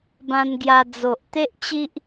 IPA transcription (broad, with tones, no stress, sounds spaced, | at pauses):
b ã˧ n ɡ j a˧ d͡z o˨ ʔ t̪ e˦ ʔ t͡ɕ i˦ ʔ